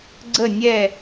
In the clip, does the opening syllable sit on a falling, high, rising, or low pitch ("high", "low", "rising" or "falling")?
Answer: falling